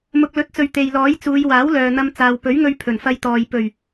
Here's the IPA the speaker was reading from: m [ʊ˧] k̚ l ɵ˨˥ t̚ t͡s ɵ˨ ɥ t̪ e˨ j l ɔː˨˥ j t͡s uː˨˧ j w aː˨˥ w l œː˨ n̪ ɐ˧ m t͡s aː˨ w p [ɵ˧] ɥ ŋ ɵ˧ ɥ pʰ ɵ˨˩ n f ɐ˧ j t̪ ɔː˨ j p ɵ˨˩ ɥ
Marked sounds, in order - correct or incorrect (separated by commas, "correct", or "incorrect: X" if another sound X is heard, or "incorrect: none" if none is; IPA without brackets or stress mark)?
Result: incorrect: ʊ˨, incorrect: ɵ˨˥